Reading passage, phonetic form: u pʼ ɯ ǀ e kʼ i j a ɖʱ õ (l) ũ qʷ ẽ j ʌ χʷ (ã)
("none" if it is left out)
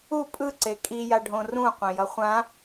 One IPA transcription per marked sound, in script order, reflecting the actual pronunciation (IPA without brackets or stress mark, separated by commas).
r, ã